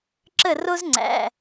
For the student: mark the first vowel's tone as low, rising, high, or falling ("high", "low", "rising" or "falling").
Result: falling